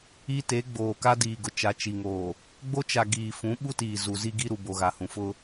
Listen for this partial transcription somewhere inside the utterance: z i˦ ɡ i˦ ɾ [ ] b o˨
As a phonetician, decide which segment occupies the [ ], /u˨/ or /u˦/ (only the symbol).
u˨